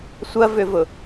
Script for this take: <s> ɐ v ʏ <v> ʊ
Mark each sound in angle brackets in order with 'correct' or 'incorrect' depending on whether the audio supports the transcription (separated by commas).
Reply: incorrect, correct